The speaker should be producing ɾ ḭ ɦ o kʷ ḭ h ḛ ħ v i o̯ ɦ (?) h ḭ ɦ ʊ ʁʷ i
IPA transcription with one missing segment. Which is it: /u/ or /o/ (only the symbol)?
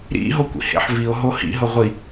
o